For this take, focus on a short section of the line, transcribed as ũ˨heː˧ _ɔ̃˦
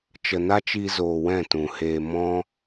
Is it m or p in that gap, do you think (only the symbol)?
m